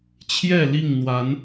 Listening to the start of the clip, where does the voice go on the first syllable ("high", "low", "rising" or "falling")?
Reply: falling